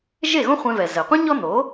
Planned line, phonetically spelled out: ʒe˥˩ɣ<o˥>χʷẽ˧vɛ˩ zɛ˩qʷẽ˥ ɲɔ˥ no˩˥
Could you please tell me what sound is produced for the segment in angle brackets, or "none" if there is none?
õ˥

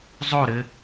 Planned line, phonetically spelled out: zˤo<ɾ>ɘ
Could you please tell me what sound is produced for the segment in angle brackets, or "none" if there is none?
ɾ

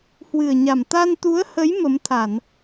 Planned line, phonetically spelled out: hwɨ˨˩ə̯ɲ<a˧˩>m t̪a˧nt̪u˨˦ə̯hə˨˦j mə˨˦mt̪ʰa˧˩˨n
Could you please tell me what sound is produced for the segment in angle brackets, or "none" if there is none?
a˨˩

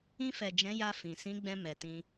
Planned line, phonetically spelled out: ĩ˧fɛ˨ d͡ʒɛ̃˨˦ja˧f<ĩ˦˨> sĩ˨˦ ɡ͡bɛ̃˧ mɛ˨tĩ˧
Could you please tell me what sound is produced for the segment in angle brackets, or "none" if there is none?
ĩ˨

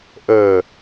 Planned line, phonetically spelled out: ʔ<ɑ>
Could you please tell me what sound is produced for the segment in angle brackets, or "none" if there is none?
ə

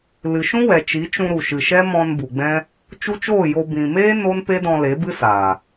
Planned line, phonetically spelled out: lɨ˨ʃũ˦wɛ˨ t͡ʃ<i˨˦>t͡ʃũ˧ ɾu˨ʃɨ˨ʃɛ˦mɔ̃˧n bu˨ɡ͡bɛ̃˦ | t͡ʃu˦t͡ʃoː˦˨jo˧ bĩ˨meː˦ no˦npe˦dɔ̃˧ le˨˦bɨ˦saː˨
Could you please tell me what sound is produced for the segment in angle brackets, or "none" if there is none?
i˨˦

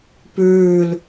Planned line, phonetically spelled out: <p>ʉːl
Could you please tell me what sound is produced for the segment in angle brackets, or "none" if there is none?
p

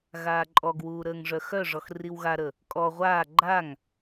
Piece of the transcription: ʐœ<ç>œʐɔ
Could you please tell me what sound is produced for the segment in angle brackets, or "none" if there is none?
x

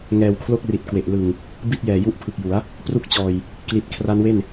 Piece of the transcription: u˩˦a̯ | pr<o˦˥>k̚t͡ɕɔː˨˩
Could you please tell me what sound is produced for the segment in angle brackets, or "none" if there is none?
u˦˥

